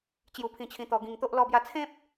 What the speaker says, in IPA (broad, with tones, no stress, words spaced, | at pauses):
t͡ɕju˧pʰĩ˧t͡ɕʰĩ˧ t̪ɔ˧ɡĩ˧ŋt̪o˦ʔ lɔ˧bja˧t͡sʰẽ˦p̚